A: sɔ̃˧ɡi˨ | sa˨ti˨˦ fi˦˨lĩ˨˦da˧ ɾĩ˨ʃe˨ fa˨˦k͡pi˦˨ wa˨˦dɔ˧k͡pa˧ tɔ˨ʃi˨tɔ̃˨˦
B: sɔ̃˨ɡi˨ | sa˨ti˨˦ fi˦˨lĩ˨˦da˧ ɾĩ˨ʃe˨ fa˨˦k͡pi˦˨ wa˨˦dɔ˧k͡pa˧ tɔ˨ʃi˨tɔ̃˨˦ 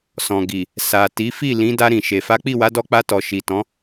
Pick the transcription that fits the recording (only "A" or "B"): B